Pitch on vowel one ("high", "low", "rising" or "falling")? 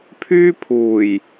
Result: high